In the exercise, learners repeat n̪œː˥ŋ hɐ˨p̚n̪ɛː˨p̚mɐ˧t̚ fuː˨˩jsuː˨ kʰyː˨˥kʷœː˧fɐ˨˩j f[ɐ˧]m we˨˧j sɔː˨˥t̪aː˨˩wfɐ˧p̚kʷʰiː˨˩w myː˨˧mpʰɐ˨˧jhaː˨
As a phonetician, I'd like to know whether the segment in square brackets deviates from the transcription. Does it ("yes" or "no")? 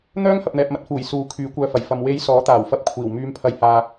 yes